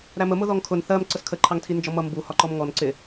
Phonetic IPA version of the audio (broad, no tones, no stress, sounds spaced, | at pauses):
ɾ æ m ə m ʊ ð ɔ ŋ kʰ ʊ n θ ɜ m ǀ ə s kʰ ə ǃʰ ɑ ŋ tʰ i n d͡ʒ ɔ m ʌ m b u h ɒ ǃ ɔ m ŋ ɔ n ǀ ɪ